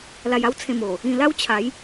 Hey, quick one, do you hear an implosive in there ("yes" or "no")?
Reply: no